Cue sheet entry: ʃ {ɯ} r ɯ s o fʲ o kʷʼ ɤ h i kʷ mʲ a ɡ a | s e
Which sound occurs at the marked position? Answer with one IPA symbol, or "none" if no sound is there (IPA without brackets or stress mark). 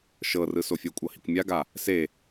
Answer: ɤ